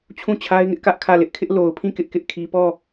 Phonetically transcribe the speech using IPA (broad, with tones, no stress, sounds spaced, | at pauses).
t͡ɕʰ ũ˦˨ t͡ɕʰ a˦ ɪ̯ ŋ ɪ˦ ʔ k ä˦ ʔ kʰ ä˦˨ l ɪ˦ ʔ kʰ ɪ˦ ʔ l o˨ ʊ̯ pʰ ĩ˦˨ k ɪ˦ ʔ k ɪ˦ ʔ kʰ i˦ p ɔ˦˨